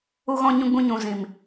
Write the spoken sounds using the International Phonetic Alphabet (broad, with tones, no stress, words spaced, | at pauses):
u˧ɣɔ̃˧ ɲũ˧ɡ͡bũ˧ɲũ˨ zĩ˨m